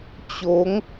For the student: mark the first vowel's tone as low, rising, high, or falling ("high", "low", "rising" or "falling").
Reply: rising